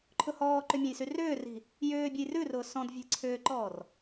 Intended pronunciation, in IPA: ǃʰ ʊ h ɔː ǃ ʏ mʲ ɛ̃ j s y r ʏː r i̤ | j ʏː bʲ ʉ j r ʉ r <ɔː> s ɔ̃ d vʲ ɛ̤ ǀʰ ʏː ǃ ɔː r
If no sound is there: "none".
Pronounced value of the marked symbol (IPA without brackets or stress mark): ʊː